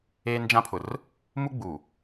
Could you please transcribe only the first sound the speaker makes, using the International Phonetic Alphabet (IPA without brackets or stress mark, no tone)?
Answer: eː